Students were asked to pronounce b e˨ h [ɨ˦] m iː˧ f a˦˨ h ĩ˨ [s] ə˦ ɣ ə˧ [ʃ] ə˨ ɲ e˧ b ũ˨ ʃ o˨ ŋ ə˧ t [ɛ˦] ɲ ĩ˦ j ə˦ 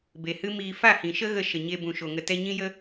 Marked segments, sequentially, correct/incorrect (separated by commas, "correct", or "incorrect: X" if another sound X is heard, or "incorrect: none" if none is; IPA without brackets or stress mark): correct, incorrect: ʃ, correct, incorrect: ɛ˧